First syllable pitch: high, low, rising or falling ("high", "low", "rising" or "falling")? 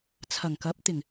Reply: low